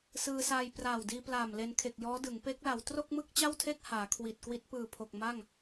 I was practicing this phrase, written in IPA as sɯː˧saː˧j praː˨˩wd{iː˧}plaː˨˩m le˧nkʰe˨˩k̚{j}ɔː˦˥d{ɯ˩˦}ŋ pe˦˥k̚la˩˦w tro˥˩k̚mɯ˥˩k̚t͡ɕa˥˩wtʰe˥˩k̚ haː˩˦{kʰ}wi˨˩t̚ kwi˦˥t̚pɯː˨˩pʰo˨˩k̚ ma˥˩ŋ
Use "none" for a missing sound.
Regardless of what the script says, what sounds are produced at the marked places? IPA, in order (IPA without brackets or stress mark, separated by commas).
iː˧, j, ɯ˩˦, kʰ